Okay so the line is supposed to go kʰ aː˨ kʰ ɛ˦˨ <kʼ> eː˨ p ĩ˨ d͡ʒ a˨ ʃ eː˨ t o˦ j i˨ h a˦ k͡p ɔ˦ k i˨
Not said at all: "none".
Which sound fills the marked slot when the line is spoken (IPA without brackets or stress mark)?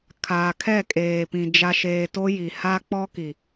kʼ